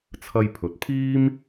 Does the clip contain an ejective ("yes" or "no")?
no